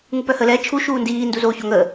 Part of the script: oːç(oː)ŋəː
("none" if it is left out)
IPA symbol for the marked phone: o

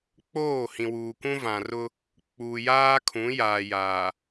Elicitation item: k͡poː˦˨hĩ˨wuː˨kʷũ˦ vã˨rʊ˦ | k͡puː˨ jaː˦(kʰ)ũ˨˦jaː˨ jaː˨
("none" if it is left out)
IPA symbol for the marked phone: kʰ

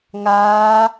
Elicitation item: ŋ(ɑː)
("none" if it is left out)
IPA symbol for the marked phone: aː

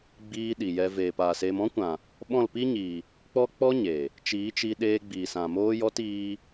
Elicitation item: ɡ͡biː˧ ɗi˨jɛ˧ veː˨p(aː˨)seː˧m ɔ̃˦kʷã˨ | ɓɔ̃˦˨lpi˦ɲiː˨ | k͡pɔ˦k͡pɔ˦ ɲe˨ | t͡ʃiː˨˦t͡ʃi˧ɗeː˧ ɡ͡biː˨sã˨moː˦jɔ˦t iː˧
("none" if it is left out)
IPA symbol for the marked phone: aː˨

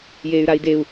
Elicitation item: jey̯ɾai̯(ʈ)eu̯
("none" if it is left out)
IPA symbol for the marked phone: d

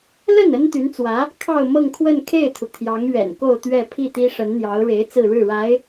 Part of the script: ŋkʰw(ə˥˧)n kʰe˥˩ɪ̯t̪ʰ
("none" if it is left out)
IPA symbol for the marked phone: ə˥˧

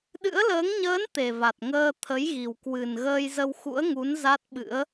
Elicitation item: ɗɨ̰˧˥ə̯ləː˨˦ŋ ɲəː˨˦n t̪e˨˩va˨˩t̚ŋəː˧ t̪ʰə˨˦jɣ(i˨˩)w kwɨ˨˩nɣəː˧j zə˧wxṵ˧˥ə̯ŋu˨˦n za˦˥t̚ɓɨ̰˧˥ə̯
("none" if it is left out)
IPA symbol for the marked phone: i˨˩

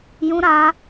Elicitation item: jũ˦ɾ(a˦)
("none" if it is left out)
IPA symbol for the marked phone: a˦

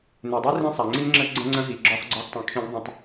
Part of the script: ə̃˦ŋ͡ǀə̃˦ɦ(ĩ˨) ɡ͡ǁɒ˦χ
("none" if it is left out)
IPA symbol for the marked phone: i˨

